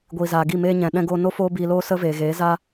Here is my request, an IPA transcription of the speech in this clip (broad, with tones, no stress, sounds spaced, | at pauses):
ɡʷ iː˨ z aː˨ ɡ i˦˨ m eː˧ ɲ ɛ̃˨ ɗ ɛ̃˧ ɡ oː˧ n o˦ f oː˦ b iː˧ l oː˦ s ə˦ v eː˨ ɣ eː˨˦ z aː˦